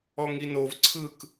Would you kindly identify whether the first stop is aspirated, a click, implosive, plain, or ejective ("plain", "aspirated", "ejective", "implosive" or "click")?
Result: click